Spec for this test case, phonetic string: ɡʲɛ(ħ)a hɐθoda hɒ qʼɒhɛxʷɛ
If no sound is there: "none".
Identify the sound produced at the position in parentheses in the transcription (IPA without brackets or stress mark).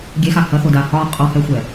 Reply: x